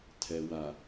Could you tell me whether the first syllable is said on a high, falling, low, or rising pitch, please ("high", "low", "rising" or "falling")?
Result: low